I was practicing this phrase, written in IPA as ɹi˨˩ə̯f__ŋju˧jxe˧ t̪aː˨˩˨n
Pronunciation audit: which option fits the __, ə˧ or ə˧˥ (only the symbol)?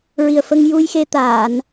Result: ə˧